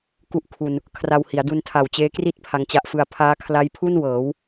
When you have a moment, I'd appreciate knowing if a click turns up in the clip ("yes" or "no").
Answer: no